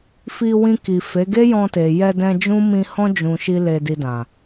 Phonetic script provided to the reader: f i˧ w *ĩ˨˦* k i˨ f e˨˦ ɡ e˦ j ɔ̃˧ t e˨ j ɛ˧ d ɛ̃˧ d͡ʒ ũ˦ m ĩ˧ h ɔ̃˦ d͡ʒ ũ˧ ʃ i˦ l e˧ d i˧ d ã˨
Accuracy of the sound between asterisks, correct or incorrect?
incorrect: ĩ˧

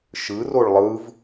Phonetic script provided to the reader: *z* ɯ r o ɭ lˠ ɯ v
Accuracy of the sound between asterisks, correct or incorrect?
incorrect: ʃ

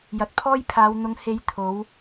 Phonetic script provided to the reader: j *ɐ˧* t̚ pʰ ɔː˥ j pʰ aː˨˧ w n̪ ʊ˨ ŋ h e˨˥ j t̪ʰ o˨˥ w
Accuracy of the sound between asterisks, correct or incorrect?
incorrect: ɐ˨˥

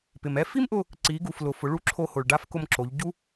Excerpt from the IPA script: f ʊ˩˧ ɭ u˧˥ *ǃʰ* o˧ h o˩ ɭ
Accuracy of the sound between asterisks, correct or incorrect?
incorrect: ǁʰ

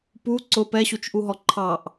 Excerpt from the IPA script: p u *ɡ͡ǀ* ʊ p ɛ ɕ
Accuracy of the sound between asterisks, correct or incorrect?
incorrect: ǀ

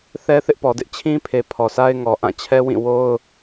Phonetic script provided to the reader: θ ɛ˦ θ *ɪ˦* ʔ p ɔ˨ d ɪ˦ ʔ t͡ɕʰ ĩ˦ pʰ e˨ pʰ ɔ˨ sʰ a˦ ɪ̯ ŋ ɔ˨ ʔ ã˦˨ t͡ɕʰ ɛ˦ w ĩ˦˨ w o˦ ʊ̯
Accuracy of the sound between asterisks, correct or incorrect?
correct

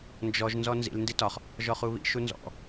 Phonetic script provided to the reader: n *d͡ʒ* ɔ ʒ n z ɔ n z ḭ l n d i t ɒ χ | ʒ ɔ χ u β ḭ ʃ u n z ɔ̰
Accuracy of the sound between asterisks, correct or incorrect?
correct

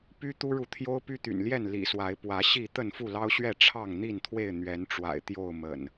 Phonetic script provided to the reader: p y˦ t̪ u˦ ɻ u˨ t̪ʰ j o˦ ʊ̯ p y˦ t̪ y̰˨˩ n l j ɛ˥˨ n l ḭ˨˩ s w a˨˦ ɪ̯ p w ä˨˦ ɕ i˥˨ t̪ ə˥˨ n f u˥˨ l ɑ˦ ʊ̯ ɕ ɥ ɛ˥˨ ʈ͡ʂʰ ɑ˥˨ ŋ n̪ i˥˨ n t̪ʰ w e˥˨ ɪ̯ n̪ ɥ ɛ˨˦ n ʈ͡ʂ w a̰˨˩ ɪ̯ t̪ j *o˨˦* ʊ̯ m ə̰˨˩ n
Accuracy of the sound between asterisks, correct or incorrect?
incorrect: o˥˨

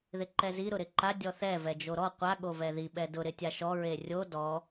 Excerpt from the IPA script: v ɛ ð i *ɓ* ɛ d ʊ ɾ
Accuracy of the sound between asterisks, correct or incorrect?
correct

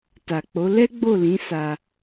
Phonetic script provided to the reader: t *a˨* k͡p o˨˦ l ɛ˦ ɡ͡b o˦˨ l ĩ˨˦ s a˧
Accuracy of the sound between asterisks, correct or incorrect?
correct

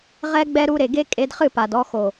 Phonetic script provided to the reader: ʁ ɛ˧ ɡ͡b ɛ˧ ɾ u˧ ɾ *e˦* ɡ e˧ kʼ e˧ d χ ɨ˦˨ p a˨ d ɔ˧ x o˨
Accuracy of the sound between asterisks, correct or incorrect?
incorrect: e˨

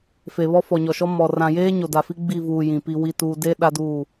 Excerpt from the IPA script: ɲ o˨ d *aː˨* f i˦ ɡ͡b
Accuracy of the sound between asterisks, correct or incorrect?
incorrect: a˨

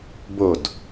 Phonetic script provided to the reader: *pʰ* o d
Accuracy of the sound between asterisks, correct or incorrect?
incorrect: b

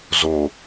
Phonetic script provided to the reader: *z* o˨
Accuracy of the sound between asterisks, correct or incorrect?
correct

